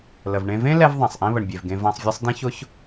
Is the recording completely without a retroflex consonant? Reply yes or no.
no